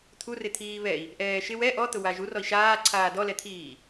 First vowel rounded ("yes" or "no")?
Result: yes